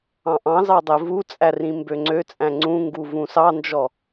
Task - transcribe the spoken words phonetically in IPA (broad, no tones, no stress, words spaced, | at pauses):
ɑ̃ʔɑ̃zɑ dˤevut͡sʼæ rĩmbøŋ͡ǀøt͡sʼæ̃ ŋ͡ǀũŋɡu vũsɑnd͡ʒɔ